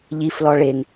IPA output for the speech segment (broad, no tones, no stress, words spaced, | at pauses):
ʎiflɔ ɭeŋ